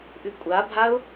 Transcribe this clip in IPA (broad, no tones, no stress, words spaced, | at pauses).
ʔʉkʷʼabʱaʊ̯